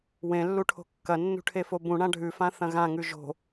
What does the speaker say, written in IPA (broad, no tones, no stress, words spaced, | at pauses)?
wẽlːuʈʰo̤ kːɐnːṳʈʰefo bũɳã ɖʱʉfãθɐ̃ ɣãŋʉ ʒo̤